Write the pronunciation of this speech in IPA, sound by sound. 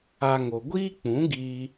a˦ ŋ o˧ ɡʷ iː˦ k͡p ũ˨˦ ɡ iː˧

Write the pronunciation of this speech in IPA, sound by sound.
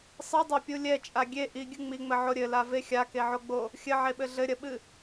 sˤ ɨ dˤ a pʲ u lʲ ɛ t͡ʃʼ a ɡʲ e ʔ i ɡʲ ɨ ŋ͡m i ŋ͡m ɘ ʕ o ɾʲ ɘ l a v e xʲ a k e ʕ o ɡ͡b o | xʲ ɘ ʕ e ɓ ɘ ɮ ɘ ɾʲ ɐ ɓ ɨ

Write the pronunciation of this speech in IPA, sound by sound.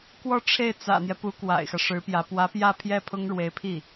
k w ɔ˥˧ ʈ͡ʂʰ e˥˩ ɪ̯ t͡s ä̰˨˩ n̪ j ɛ˦ p u˧˥ k w a̰˨˩ ɪ̯ x ä˦ ʂ ɻ̩˧˥ p j ä˧˥ p w ä˧˥ p j ä˥˧ pʰ j ɛ˥˩ pʰ ʊ˥ ŋ ɻ w e˧˥ ɪ̯ pʰ i˥˩

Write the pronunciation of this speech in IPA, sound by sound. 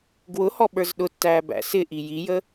ɡ w ʊ h ɔ ɓ ə˞ z ɗ ʊ tː æː b æ̰ s ɪ ʔ i j i j ə

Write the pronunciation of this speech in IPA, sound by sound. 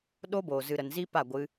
ɗ o˧ b oː˨ z ɨ˨ ɾ ə˨ n z i˦ p a˦˨ ɡʷ ɨ˧

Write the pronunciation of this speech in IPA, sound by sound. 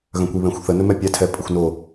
ɣ œ̃ kʷ i β ɛ̃ xʷ θ ə n ɵ m ɛ pʲ ɛ tʰ ɛ pʼ ə xʷ n o

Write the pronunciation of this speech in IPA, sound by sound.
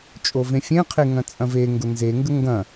t͡ʃʼ o v ẽ fʲ ẽ qʰ e ŋ ɐ̃ t͡sʼ ɐ̃ v e ŋ ɡ ʊ n z e ŋ ɡ ə ŋ ɡ ɐ̃

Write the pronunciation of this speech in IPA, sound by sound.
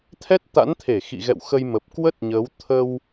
t̪ʰ ɛ˦˥ t̚ t̪ a̰˧˥ n t̪ʰ e˧˩ x ḭ˧˨ ɣ ɛ̰˧˨ w x ə˧ j m ə˨˩ p̚ k w ə˦˥ t̚ ɲ əː˨˦ w t̪ʰ ə˧ w

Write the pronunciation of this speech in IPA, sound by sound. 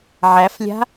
ʕ æ f lʲ a̤

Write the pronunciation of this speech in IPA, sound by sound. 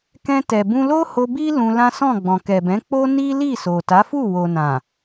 k ɛ̃˧ t ɛ˨ b ũ˧ l o˦ h o˧ b i˦ l ũ˧ l ã˦ s ɔ̃˦˨ ɡ͡b ɔ̃˨ k ɛ˨ b ɛ̃˨˦ k͡p o˦ n i˦ l i˦˨ s o˨ t a˨˦ f u˦˨ w o˨ n ã˨

